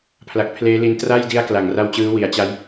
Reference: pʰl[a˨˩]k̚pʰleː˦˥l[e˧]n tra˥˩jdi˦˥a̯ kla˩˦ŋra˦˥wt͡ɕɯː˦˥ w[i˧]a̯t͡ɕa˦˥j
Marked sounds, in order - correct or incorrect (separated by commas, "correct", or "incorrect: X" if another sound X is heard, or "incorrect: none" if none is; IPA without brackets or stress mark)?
correct, incorrect: i˧, incorrect: i˩˦